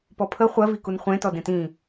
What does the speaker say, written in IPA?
pɔpʰə χʷɜ vikunχʷẽ tɔdẽtĩ

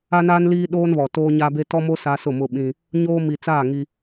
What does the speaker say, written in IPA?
a˦naː˦n liː˦ɗoː˦nβɔ˨ toː˦ɲa˦be˦ tɔ˦mo˦ sa˦sʊ˦˨mʊ˦ɓĩ˦ | ɲoː˦ mi˨t͡saː˦˨ ŋi˦

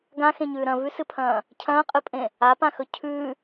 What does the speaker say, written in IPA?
ɡãxẽɲʉː ɾɐ̃vʉsɨpʰɐ̃ː | cʰɐ̃ːqʼɨpʼẽ | apãxɵ cʰʉː

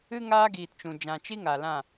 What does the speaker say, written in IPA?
ɨ˦ ŋaː˦ɡiː˨tt͡ʃũ˨ d͡ʒã˨t͡ʃi˦ ŋa˨lã˦˨

